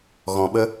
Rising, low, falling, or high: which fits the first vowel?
low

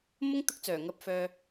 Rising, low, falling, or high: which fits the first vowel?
high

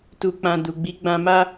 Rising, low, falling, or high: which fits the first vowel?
low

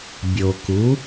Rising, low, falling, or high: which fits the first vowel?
low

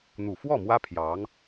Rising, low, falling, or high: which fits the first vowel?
low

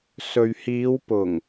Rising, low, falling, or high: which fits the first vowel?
low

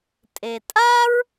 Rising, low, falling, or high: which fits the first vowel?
low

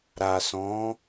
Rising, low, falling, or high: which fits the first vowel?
low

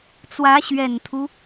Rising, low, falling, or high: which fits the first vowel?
rising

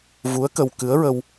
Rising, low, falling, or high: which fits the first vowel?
rising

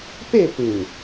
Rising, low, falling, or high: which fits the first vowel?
falling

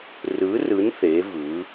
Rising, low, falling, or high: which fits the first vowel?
rising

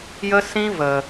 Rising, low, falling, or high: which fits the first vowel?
high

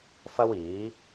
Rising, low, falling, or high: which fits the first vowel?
high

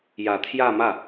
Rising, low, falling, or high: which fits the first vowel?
low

